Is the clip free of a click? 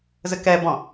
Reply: yes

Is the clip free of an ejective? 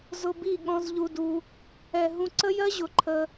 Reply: yes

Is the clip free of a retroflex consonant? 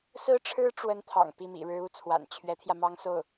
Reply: no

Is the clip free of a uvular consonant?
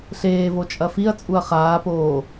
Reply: no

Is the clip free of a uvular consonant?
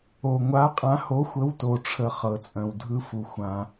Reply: no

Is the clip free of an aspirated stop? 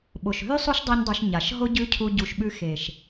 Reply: no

